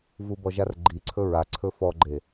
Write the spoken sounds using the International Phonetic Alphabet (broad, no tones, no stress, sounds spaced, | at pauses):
v u b ɔ ʒ a r ɡ͡ǃ i ǀʰ ɵ ɹ a ǀʰ ɵ f ɔ ɡ͡ǃ e